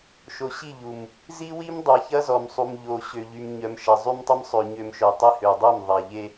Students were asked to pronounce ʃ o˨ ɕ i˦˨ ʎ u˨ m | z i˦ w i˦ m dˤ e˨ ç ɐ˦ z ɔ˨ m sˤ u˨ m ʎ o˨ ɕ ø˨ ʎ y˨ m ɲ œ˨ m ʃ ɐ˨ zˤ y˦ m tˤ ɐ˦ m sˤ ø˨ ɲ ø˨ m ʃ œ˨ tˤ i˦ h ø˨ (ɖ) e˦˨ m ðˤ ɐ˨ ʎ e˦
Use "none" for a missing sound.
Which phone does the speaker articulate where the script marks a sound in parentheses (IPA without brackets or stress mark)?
dˤ